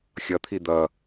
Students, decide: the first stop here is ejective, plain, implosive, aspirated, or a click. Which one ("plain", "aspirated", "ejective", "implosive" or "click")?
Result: aspirated